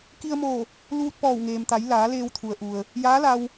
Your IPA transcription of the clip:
k i˧ ə̯ m oː˧˩ | l uː˧ t̚ p ɔː˧˩ w ŋ eː˩ m t̪ a˩˧ j l aː˩˧ l eː˧ w t̪ʰ u˩ ə̯ ʔ u˩ ə̯ | j aː˧˥ l a˧ w

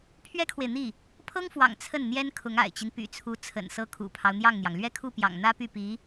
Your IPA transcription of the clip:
pʰ ɥ ɛ˥ kʰ w e˨ ɪ̯ n̪ i˥˩ | pʰ ɤ˥ ŋ f w ɑ̰˨˩ ŋ t͡sʰ ə˥˩ n n̪ j ɛ˥ n kʰ ʊ˧˥ ŋ a̰˨˩ ɪ̯ t͡ɕ i˦ n p y̰˨˩ t͡sʰ u˧˥ t͡sʰ ə̰˨˩ n s ɤ˥˩ kʰ ṵ˨˩ pʰ ɑ˦ ʊ̯ n̪ j ɑ˥˩ ŋ n̪ j ɑ˩ ŋ l ɥ ɛ˥ kʰ u˥˩ p j ɑ̰˨˩ ŋ n̪ ä˥ p y˥˩ p i˧˥

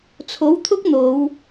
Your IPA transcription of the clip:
t͡sʰ o˨˥ w t̪ʰ ʊ˥ k̚ n̪ o˨˧ w

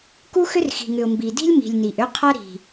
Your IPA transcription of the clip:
k u˦ x ʏ˦ r x i̤˨ ŋ ʏ˨ ʊ̯ m b i˨ d i̤˦ lʲ m i̤˨ lʲ n i˨ ʔ ʏ˦ qʰ a˦ ɾ i̤˨

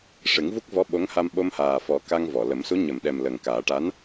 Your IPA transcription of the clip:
ʂ ɨ˨˩˦ ŋ v u˦˥ k̚ v ɔ˧˥ ɓ o˧˥ ŋ h a˧ m ɓ o˧ m h aː˨˩ f ɔ˨˩˦ k a˧ ŋ v ɔ˨˩˨ l ə˨˩˦ m s u˧˥ ɲ ə˨˩˨ m ɗ ɛ˨˩ m l ə˨˩ ŋ k aː˨˩˦ ʈ a˧˥ n

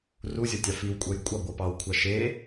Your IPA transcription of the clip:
r u zʲ ʌ tʲ ɑ f i w kʷʼ ɜ j kʷʼ ɑ ɡʷ ʌ p ɑ w kʷʰ ɑ ʃ e

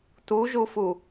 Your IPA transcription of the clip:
t u ʒ u f u

